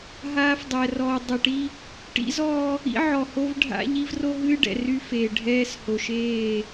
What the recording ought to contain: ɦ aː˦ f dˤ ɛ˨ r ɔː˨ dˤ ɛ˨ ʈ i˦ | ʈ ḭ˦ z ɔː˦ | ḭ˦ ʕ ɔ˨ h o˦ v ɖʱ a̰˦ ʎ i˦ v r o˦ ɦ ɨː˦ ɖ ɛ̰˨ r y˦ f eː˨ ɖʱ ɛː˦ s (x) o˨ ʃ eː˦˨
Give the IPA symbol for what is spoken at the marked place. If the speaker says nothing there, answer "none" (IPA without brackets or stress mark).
h